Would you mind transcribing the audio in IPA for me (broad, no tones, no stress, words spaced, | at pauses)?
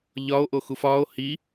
ʎɒo̯ ʔoxufɒːo̯ hi